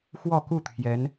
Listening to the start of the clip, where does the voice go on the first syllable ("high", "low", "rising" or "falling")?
falling